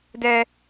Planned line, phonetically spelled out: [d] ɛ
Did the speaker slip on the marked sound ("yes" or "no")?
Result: no